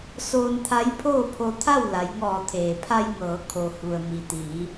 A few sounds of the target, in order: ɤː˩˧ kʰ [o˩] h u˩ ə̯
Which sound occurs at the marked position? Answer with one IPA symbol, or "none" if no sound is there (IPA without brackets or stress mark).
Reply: o˩